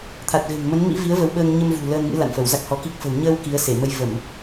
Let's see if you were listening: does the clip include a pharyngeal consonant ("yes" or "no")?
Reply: no